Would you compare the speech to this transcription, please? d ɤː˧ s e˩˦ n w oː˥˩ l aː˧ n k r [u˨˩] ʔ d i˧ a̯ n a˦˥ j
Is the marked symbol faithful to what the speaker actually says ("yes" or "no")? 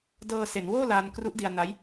no